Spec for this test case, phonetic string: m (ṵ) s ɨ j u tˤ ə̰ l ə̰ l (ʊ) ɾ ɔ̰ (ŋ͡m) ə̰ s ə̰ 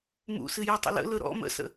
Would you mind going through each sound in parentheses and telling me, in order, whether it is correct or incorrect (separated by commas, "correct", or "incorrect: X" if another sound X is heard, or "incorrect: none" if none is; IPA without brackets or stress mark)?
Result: correct, incorrect: ɵ, incorrect: m